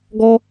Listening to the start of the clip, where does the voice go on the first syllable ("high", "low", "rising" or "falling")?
high